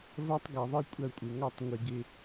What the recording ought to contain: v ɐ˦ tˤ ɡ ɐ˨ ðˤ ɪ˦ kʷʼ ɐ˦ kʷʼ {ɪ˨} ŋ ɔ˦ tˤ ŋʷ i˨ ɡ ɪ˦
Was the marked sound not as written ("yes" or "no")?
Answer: no